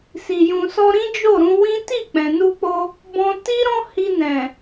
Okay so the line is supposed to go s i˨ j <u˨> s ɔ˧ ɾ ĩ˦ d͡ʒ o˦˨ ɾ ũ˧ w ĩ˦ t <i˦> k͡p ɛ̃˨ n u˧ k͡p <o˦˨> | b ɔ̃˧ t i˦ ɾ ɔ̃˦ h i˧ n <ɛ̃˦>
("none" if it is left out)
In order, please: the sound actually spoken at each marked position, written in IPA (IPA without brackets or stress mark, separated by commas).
ũ˨, i˦˨, o˧, ɛ̃˨